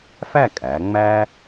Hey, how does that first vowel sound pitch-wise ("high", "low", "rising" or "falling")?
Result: falling